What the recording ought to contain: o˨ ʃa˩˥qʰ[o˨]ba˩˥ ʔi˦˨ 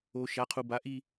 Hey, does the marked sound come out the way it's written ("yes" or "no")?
no